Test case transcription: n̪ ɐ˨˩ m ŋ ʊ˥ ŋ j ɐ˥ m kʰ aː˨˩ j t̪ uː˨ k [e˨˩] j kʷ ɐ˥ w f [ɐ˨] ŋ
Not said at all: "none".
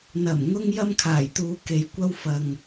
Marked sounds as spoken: e˨, ɐ˨

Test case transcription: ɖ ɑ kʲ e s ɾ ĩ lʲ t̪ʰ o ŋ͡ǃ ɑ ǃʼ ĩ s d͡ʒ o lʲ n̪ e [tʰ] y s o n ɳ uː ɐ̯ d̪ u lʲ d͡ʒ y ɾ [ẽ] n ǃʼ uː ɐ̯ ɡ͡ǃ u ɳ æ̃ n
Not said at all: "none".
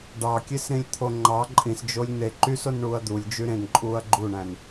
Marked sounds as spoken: ǃ, ẽ

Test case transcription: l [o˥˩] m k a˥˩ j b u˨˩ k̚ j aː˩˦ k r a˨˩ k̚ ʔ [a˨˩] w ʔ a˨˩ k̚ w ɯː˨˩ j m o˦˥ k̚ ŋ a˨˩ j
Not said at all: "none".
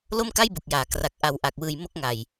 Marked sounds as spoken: o˥˩, a˨˩

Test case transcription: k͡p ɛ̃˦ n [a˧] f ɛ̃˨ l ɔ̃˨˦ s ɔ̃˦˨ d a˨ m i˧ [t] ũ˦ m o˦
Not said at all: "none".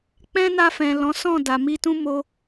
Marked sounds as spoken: a˧, t

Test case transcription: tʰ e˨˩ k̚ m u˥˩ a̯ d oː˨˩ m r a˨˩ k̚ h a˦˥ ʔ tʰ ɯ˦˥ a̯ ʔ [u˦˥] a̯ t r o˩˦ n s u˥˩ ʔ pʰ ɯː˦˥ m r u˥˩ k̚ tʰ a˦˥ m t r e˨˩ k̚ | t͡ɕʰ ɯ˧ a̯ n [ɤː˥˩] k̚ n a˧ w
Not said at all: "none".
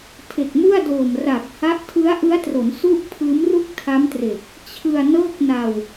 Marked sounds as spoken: ɯ˦˥, ɤː˥˩

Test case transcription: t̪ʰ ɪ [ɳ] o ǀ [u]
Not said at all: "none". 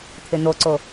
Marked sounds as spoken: n̪, o

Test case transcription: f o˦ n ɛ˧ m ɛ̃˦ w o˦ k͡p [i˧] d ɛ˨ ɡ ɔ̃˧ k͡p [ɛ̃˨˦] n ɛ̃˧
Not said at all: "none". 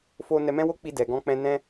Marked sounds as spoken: i˧, ɛ̃˧

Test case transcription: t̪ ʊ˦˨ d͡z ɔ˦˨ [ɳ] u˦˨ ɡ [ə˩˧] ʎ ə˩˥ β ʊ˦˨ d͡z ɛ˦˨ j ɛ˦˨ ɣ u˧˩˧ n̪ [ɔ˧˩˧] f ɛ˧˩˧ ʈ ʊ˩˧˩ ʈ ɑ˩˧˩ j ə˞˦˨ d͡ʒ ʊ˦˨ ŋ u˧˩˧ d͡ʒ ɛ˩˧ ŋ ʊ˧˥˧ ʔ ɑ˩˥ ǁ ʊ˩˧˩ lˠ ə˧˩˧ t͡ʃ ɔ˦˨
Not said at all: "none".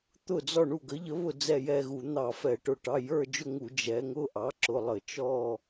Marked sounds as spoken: ɳ, ə˩˥, ɑ˧˩˧

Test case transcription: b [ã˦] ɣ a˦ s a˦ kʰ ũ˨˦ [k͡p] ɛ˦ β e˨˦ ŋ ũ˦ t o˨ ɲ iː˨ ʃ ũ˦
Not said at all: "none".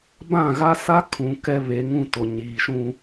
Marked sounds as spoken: ã˦˨, k

